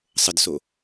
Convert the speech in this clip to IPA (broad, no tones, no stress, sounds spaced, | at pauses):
sˤ ə d s o